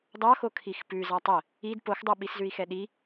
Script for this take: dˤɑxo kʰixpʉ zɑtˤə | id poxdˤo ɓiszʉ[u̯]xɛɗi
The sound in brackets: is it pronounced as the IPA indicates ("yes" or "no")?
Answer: no